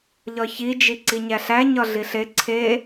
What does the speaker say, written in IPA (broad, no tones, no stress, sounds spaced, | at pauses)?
ʎ ɒ ç i d͡ʒ i ǀ i ɲ æ ɬ æ ɲ ɒ ɮ i ɬ e ǀʰ e